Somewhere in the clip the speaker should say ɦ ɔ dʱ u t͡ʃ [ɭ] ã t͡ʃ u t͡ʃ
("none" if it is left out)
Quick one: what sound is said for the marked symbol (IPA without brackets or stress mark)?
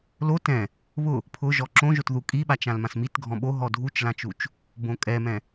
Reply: l